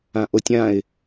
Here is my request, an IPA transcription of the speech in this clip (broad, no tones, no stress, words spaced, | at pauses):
ãʔotʲãɪ̯